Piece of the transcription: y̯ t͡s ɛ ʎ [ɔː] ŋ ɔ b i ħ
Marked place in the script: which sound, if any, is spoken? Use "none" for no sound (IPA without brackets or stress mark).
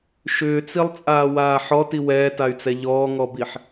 ɔː